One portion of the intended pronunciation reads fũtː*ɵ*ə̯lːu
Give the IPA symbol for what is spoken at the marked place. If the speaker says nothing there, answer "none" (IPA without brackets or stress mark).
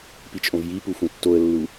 o